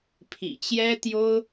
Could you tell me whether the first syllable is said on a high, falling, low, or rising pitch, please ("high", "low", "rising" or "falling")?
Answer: low